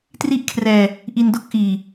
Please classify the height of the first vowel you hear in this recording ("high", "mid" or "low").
high